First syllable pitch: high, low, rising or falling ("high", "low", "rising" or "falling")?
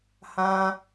high